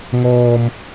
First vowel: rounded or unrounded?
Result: rounded